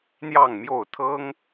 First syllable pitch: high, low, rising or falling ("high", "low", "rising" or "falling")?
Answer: falling